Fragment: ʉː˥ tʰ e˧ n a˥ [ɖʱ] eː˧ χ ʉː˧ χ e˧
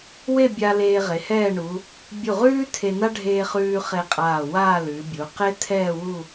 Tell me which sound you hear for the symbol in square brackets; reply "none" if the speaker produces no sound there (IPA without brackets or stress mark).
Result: ɖʱ